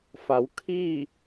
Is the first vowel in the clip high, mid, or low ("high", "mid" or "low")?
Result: low